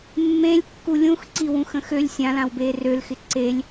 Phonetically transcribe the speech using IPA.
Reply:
mːẽlʲ kːulʲũxǀi wũxə̃xølʲ sʲãlãwbeː rølxɪ ǀelʲ

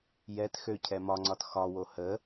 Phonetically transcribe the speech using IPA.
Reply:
jɛt xøcʰɛ mɒŋ͡ǀɒt xɒwo hə

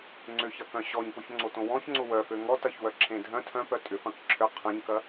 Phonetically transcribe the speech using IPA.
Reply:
ŋ͡ǀʏçɐkœ̃ ɕɔɲpʊçŋ͡ǀotõ wɔ̃çŋ͡ǀʊ wœfø ŋɔtɐçwœǁʰẽ dʱœ̃ tʰœ̃pœ tʼʏfɐ̃k ǁʰʏ qʰɐ̃ɲkɐ

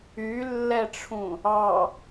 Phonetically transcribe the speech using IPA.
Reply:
ylːɛʈ͡ʂʰũ | ɑ

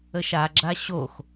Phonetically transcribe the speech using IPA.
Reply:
əʃaɡ͡ǁa ɕox

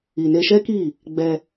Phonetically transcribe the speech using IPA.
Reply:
i˨ne˧ʃɛ˦ki˦˨ | ɡ͡bɛ˧

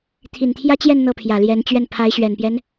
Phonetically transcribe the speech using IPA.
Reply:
t̪ʰi˨˩nt̪ʰjä˥t͡ɕjɛ˥˧n n̪ɤ˥˩pʰjä˨˩ljɛ˧˥nt͡ɕɥɛ˥˩n pʰa˧˥ɪ̯ɕɥɛ˨˩npjɛ˦n

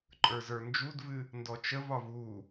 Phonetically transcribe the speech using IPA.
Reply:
ǃʼə˞zə˞nd͡ʒudvɨ | ndɔt͡ʃəvɒv u

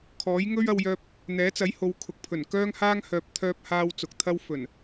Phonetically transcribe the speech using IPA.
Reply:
kʰɔː˨˥jŋɵ˥ɥɐ˧wjœː˧p̚ | n̪ɛː˨˥t͡sɐ˨˥jho˨˧w kʰʊ˨k̚pʰɵ˨˩nkœː˥ŋhaː˥ŋ hœː˨p̚t̪ʰœː˧p̚haː˧w t͡sʊ˨k̚ t̪ʰɐ˥w fɵ˨˩n

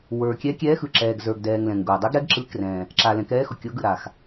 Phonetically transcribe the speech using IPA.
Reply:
wə˞˨˩ kʲɛ˨˥kʲɛː˨˥xɯ˨˩ǁɛː˨˩ɡ zə˞˨˩ɡdɛː˨˩ŋ lɛ̃˨˩ŋɡʊː˨˩ dˤe˨˥ɡ ɾɛ˨˥ɡǁɯ˨˥krɛ̃˨˩ | ǁa˨˩lɛ̃˨˩kɛː˨˥ xʊ˨˩kʲʊː˨˥ɡɯ˨˩ ɾa˨˩x

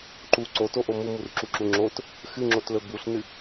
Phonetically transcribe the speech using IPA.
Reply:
ǃu ǀotoʔo mumurǁuǁu ŋ͡ǁot | xɨŋ͡ǁotlɵ buɬnɨ

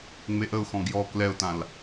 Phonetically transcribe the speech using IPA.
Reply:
ŋ͡meʔəʊ̯xɔ̃ ɡjɔ klɛʊ̯tãl

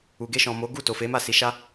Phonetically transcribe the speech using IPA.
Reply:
u˨ ɡe˧ʃɔ̃˨mo˨˦ ɡu˦˨to˨ fe˨˦ ma˦˨si˧ ʃa˦

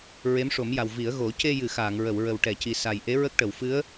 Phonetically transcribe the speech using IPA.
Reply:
ɹe˧˥mʂo˨˩˦mja˨˩w vi˨˩˦ə̯ɣo˨˩˦ ce˧jɨ˨˩˨ xaː˨˩˨ŋɹə˨˩˨w ɹə˨˩wʈɛ˨˩˨ci˨˩ sa˨˩jʔe˧˥ɹə˦˥k̚ʈə˨˩˨w fɨ˧˥ə̯

